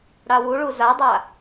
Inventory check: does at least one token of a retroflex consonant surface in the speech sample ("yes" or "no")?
yes